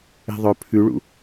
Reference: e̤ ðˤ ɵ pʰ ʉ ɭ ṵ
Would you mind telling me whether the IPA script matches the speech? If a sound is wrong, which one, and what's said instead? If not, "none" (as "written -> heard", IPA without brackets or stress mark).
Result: none